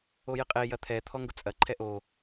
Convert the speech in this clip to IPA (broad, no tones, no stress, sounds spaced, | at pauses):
o j ɪ qʼ e j ɐ t̪ʰ ɛ t̪ʰ ɔ ŋ ɡ ʊ t͡sʼ ɐ ǃʰ ɛ ʔ o